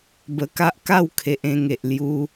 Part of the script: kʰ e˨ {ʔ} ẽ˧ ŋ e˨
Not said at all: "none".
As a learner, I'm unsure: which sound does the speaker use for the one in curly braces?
ʔ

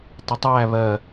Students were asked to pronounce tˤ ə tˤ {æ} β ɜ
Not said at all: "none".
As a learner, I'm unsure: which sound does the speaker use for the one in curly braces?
æ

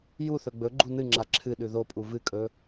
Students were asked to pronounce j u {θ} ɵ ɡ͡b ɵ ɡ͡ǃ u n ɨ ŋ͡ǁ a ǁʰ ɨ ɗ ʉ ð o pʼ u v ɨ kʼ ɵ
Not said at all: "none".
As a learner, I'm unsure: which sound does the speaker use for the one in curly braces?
θ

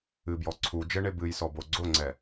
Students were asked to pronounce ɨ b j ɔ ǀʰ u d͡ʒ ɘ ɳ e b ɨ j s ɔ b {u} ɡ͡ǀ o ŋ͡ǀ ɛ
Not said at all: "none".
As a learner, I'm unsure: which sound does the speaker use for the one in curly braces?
o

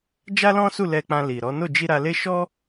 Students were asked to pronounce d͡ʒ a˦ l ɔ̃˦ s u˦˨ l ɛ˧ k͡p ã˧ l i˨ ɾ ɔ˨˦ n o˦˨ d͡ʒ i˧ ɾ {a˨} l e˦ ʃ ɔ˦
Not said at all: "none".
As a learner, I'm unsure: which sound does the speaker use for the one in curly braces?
a˧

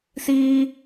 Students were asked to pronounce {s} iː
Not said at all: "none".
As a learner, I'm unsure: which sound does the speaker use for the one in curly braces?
s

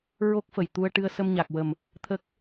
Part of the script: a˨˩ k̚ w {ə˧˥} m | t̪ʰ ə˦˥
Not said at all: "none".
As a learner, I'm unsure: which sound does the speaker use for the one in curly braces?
ə˨˩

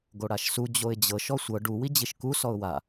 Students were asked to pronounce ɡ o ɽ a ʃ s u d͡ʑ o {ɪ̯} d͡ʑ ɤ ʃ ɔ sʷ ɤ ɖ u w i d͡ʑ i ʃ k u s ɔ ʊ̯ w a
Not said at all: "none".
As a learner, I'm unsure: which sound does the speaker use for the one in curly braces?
ɪ̯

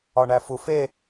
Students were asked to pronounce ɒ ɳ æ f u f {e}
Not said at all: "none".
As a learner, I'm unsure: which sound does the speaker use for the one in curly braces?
e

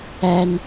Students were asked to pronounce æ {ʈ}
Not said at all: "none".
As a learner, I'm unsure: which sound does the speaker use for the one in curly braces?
n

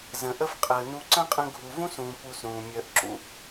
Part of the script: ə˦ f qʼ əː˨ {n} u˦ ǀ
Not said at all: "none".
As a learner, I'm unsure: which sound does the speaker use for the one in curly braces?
n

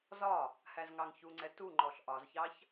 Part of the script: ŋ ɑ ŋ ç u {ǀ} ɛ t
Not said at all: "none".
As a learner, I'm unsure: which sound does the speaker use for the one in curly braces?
ŋ͡ǀ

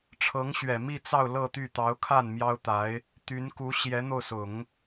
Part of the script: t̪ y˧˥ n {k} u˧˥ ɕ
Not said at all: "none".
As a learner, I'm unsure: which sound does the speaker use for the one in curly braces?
k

